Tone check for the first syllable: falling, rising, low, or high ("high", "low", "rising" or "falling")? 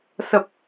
low